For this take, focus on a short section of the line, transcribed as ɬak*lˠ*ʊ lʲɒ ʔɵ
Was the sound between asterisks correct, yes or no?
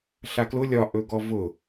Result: no